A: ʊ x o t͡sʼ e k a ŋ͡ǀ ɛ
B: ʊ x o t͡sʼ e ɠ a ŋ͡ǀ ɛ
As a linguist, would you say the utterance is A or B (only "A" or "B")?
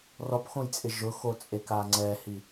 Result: A